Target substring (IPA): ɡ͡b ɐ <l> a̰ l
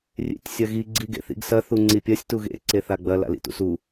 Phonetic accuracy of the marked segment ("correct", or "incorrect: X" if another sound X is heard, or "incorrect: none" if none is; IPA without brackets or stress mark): correct